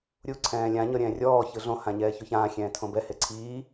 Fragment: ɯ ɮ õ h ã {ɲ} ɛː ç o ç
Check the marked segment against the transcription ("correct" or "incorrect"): correct